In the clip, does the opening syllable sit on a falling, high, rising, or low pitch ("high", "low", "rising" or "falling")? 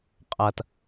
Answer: low